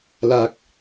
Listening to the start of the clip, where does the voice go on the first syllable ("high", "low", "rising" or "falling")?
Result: low